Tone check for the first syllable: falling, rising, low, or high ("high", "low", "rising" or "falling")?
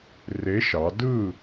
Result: rising